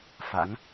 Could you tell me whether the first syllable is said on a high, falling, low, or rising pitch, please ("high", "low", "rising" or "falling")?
rising